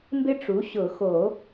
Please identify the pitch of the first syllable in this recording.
high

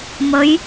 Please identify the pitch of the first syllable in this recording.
rising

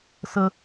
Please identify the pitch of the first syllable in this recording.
high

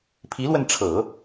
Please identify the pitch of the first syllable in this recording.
rising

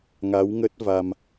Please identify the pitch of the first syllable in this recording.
rising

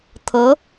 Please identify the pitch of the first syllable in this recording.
rising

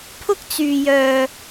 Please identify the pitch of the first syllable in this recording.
high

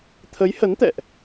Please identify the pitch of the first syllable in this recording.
rising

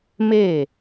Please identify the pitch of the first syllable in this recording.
falling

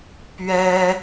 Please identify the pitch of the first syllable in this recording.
high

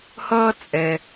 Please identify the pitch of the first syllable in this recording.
high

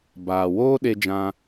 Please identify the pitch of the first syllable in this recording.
low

